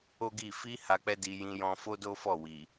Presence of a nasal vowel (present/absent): present